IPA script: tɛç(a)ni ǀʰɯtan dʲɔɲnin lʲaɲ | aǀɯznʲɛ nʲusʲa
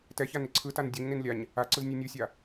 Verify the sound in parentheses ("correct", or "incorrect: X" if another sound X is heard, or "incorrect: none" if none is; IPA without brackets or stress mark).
correct